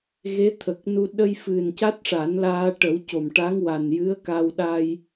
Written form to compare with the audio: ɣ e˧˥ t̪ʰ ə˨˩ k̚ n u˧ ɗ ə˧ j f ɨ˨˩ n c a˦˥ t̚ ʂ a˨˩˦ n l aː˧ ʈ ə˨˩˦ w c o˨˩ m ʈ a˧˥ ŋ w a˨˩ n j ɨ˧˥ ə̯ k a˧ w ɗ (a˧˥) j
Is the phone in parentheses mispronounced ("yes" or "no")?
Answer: yes